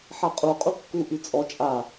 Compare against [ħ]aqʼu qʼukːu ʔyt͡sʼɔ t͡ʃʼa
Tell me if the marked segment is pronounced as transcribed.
yes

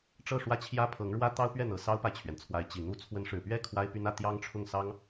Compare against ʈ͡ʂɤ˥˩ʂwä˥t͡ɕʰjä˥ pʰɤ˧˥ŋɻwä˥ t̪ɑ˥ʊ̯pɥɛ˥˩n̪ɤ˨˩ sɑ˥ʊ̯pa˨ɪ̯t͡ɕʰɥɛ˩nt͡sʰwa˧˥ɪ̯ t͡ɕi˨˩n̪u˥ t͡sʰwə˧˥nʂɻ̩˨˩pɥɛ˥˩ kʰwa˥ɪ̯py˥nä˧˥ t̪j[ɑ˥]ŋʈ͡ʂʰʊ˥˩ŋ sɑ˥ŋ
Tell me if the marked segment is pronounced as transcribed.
yes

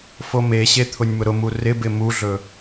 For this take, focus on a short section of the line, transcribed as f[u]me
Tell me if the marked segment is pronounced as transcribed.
no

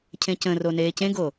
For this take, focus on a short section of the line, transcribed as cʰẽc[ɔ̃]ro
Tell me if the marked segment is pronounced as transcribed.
no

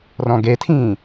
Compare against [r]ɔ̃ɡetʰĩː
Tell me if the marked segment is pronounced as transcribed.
yes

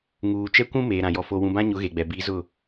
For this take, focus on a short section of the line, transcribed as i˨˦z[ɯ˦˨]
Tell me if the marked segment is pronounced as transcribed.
no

